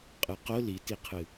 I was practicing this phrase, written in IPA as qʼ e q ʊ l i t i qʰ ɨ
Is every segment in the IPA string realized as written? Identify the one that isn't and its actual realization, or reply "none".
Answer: e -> ɨ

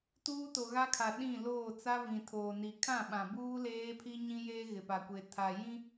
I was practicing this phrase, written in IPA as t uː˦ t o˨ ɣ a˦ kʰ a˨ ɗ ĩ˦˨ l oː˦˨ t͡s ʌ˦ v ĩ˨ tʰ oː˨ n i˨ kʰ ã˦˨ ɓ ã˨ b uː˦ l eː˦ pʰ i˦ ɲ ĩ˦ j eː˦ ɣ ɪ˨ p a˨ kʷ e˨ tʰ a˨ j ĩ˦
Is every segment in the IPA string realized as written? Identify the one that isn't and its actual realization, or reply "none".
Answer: ʌ˦ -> a˦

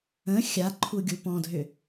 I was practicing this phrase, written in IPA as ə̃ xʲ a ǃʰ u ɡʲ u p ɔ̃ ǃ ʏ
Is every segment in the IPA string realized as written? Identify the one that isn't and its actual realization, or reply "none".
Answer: ǃ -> dʱ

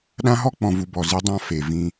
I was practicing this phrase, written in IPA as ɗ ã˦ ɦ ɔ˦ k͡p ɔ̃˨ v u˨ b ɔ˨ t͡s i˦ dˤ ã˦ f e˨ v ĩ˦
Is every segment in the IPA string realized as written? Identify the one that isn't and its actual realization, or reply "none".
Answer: t͡s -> z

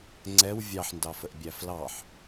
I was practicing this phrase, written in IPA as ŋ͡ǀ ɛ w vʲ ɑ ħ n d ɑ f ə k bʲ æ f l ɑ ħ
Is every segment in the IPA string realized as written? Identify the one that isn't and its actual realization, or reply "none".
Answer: k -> ʔ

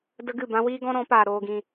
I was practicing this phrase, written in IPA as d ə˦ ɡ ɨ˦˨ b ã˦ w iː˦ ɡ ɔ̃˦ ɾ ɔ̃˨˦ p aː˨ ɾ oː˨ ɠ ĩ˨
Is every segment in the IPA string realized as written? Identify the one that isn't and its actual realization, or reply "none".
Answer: ɠ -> ɡ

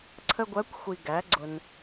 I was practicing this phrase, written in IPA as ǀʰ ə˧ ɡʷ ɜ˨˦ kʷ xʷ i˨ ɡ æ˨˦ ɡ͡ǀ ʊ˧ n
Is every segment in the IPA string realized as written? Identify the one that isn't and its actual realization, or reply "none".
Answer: none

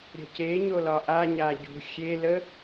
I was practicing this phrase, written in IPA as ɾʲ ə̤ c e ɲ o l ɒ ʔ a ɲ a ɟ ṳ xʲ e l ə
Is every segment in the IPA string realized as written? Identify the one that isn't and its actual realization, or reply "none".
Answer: none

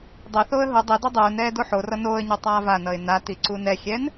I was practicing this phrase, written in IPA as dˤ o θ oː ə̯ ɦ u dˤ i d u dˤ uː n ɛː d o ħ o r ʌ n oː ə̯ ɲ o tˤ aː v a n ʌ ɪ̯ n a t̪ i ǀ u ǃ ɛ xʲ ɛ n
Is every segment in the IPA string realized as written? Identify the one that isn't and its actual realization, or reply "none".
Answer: ǃ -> n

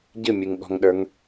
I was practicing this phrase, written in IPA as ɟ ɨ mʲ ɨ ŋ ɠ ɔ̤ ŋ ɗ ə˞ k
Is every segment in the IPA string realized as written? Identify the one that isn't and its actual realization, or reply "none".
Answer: k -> ŋ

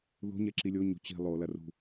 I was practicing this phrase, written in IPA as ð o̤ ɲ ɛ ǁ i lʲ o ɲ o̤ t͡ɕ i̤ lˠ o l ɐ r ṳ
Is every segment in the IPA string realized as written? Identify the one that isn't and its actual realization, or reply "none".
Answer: none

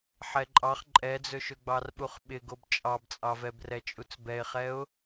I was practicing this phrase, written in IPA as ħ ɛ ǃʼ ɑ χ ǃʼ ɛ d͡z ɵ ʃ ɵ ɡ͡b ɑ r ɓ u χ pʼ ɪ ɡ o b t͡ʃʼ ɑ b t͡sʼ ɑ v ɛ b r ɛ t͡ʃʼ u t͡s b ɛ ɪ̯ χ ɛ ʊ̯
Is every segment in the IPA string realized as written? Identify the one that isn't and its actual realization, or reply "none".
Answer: pʼ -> ɓ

